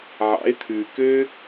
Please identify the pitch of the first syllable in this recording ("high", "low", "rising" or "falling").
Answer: rising